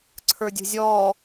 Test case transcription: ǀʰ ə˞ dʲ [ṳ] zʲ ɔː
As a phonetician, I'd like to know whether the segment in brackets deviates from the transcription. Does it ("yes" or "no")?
no